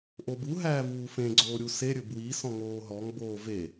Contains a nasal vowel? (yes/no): yes